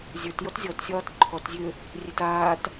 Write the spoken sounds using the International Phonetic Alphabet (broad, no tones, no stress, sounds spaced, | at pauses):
zʲ ə˞ t j ɔ t zʲ ɔ t sʲ ɒː t ǃʰ ɔ t zʲ ø | rʲ ɛ t aː t